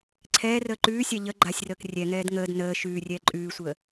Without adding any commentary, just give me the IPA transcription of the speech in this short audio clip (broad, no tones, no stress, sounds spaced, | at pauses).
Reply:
ǀʰ ɛː r əː ǃ ʉː sʲ a ʎ ə ɡ͡ǃ a sʲ r əː k rʲ ɛ ŋ ɛː d ŋ əː d n əː ʃ ʉː rʲ ɛː ǃʼ ʉː sʷ əː